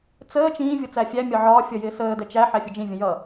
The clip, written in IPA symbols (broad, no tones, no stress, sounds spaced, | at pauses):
t͡s əː t͡ʃ ĩː vʲ ʌ t͡s æ fʲ æ mʲ ɒ ʕ ɒː fʲ ʌ j ɪː s əː d ɛ t͡ʃ æ ħ æ fʲ ʌ d͡ʒ ĩ vʲ ə̃ j ʌ